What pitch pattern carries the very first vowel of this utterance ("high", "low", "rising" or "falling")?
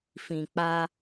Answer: low